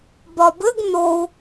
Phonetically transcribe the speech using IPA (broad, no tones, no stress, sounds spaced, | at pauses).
b ɒ b ɘ ɡ n o u̯